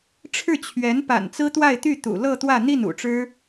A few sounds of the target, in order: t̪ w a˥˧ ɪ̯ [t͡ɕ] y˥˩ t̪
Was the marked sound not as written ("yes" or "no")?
yes